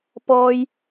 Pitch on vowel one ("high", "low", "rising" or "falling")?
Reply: high